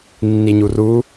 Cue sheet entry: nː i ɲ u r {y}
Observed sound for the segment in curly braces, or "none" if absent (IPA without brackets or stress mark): u